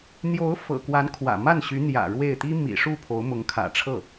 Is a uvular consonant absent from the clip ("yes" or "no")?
yes